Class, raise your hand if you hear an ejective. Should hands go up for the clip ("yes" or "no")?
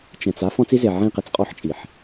yes